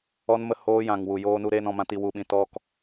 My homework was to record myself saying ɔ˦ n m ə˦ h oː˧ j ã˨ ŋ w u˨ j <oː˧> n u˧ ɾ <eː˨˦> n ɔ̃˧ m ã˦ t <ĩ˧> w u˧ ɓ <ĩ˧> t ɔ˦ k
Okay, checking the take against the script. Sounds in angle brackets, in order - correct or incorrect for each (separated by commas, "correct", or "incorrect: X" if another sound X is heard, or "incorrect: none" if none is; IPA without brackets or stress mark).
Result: correct, incorrect: eː˧, incorrect: i˧, correct